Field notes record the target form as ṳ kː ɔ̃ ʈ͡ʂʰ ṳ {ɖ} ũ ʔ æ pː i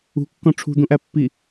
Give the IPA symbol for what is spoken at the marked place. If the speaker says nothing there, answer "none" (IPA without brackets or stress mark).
d̪